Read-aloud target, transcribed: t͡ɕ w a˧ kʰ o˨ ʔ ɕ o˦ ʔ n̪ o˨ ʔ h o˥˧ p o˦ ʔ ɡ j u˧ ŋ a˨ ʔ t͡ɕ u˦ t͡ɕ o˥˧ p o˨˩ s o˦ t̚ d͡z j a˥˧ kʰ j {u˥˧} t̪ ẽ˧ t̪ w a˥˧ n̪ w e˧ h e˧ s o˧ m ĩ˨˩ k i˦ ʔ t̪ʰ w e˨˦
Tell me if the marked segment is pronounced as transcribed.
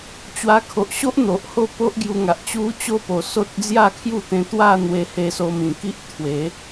yes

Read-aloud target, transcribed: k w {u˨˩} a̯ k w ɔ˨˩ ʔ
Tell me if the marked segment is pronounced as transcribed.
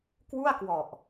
no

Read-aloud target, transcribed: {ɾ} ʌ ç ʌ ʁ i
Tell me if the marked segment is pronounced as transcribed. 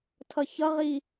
no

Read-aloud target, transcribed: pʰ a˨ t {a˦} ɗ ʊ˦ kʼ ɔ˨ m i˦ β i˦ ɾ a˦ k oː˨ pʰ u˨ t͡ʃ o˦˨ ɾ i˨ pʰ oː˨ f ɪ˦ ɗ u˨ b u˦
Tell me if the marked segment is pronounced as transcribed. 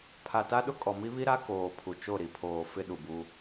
yes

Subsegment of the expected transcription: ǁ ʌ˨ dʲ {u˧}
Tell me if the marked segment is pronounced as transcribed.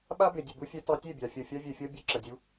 yes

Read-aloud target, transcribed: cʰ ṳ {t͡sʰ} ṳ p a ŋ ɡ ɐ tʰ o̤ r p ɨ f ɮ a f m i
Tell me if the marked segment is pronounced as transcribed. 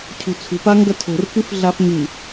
yes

